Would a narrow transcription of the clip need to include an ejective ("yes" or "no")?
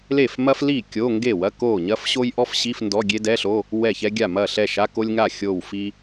no